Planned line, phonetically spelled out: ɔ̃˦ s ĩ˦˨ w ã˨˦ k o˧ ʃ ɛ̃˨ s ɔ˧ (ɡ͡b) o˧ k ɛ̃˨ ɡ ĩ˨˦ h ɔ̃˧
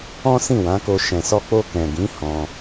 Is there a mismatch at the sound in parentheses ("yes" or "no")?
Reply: yes